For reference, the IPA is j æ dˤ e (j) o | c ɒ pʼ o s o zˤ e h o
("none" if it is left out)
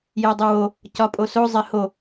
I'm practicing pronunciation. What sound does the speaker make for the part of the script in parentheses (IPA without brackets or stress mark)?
w